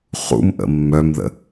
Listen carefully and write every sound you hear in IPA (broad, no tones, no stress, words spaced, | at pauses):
χṵmʔə̰ mːœmðə̰